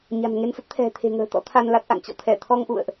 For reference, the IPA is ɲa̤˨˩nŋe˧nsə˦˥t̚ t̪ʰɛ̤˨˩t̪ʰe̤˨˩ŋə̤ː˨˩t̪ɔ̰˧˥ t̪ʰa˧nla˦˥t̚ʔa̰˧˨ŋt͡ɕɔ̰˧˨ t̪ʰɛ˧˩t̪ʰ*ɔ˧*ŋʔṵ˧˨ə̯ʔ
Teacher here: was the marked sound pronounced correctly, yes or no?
yes